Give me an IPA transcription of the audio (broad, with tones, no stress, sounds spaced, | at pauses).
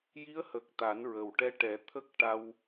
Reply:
j i˧˥ ə̯ h ə˨˩ k̚ t̪ a˨˩˦ n ɹ ə˨˩ w ʈ ɛ˧˥ ʈ ɛ˨˩˦ t̪ʰ ə˦˥ k̚ ʈ a˧ w